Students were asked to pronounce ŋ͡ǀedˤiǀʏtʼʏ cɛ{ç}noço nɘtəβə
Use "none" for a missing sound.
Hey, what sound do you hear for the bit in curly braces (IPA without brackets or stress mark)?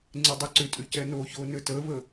none